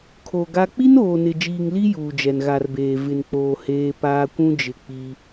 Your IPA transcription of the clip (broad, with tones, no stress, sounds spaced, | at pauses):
kʰ o˨ ɡ a˦ k͡p i˦ n oː˨ n ɪ˨ d͡ʒ iː˨ ŋ l i˦ j uː˨ d͡ʒ ɛ˨ n ɣ a˨ r b eː˨ v ɪ˨ n k͡p oː˨ h eː˦ p aː˦ kʷ ũ˦ d͡ʒ ɪ˦ k͡p i˦